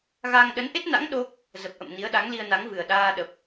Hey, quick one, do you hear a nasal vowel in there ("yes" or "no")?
no